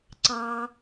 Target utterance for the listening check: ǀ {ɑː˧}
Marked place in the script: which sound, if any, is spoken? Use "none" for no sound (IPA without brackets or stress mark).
ɑː˧